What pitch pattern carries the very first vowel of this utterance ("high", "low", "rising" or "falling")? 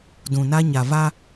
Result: low